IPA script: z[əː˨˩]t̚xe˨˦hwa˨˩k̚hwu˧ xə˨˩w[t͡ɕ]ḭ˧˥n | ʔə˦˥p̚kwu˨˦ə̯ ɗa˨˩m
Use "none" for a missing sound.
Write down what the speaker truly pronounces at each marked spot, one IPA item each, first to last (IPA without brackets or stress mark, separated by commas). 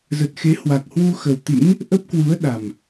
ə˨˩, t̪